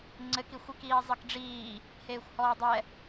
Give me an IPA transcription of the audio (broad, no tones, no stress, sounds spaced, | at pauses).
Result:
ŋ͡ǀ ɘ k i xʷ i k iː zˤ ɘ k ɖ͡ʐ iː | h eː xʷ h ɔː dˤ ɛ